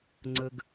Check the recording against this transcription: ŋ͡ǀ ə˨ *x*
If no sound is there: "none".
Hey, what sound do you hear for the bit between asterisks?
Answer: ɡ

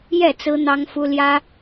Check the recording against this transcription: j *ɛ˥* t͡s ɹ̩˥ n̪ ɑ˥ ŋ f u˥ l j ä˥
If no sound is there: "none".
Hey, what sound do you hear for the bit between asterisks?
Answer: ɛ˥˩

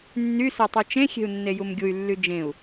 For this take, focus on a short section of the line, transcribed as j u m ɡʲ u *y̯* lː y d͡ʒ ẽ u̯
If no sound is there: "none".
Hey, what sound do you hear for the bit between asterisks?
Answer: y̯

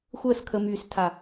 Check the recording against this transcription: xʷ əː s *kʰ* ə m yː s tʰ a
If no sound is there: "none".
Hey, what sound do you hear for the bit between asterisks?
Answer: kʰ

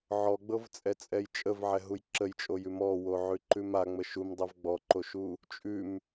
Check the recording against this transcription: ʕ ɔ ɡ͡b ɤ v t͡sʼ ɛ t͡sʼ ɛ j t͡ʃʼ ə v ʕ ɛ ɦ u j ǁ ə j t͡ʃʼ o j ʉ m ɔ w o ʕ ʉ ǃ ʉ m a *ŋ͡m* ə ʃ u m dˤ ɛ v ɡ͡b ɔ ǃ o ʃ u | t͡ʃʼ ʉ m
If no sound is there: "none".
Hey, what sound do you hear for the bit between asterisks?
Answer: ŋ͡m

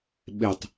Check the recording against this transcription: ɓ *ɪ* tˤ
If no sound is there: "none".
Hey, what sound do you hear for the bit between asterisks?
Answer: ɪ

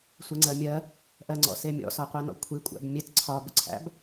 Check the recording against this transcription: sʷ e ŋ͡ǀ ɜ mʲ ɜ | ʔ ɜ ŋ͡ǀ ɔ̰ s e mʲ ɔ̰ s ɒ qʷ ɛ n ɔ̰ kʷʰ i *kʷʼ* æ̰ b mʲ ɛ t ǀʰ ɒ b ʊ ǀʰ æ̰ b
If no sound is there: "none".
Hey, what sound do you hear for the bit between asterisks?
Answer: kʷʼ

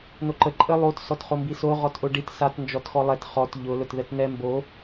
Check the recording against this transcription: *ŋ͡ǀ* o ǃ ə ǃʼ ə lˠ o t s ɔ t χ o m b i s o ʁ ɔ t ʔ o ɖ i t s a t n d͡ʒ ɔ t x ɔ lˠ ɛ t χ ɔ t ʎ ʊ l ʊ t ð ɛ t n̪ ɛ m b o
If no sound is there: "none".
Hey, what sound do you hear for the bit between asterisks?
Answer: n̪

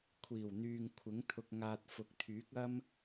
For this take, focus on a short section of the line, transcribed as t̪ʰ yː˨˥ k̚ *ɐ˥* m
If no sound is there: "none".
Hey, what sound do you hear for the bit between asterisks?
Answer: ɐ˥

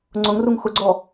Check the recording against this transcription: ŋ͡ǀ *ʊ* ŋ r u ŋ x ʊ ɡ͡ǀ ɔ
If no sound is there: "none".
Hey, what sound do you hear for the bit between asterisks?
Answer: ʊ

